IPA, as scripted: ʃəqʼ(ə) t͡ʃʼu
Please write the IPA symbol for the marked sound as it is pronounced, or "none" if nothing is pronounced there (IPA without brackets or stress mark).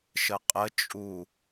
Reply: ə